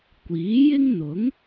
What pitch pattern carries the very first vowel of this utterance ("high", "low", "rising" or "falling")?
rising